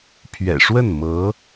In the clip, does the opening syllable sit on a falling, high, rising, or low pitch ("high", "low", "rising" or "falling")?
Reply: low